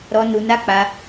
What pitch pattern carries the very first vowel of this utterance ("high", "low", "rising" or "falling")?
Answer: high